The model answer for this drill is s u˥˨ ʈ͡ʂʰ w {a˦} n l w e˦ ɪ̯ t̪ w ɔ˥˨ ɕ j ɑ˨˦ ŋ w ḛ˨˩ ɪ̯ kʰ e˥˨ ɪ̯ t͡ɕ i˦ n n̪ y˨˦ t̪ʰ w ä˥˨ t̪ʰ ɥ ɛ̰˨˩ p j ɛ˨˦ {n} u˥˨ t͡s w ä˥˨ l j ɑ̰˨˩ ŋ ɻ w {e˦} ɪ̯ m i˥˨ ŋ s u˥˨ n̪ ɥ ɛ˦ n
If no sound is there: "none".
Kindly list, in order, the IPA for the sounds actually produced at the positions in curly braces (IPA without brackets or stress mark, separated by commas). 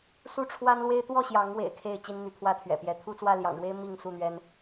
a˦, t̪ʰ, e˦